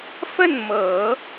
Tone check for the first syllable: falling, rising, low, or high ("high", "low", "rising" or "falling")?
falling